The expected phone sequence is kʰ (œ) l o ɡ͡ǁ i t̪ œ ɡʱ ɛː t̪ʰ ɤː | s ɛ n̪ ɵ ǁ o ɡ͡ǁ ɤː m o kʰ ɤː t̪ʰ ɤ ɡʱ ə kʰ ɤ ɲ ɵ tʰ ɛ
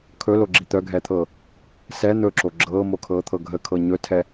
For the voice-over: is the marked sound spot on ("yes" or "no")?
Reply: no